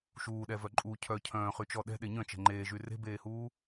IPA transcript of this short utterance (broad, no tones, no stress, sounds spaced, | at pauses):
ʃ uː ɗ ɛ v œ ǃʼ u cʰ œ cʰ œ̃ː χ y t͡ʃ ɔ ɗ ɛ̤ ɗ e ɲ œ̃ t͡ʃ ɛ̤ ŋ͡ǃ eː ʒ y r e̤ b eː h uː